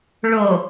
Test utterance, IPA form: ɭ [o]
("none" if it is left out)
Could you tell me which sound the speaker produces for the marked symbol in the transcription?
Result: o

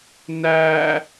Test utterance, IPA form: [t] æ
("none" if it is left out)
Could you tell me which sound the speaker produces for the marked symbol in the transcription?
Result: n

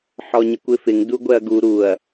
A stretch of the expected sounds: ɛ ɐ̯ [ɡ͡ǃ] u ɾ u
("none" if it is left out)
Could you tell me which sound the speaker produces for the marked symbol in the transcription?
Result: ɡ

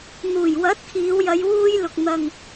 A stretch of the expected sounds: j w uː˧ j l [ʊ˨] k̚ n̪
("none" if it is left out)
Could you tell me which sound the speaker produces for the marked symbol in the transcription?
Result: ʊ˨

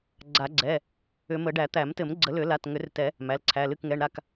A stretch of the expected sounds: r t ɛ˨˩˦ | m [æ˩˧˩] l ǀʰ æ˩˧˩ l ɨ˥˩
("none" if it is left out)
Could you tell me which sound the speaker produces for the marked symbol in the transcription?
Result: æ˩˧˩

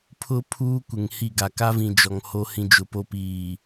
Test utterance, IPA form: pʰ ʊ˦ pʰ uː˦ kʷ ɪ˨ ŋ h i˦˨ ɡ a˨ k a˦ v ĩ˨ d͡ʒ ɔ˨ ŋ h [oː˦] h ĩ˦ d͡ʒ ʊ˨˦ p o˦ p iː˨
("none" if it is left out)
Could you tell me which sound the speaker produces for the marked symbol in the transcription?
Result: o˦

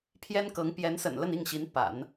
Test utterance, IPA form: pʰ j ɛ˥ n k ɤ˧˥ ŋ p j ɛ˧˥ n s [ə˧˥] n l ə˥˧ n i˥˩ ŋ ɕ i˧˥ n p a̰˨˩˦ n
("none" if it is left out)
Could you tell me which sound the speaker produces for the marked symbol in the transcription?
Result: ə̰˨˩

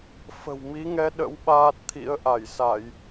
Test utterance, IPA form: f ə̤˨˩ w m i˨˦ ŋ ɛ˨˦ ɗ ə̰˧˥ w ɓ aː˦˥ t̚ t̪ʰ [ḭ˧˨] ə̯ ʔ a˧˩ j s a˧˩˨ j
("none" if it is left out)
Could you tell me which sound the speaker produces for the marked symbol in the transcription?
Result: ḭ˧˥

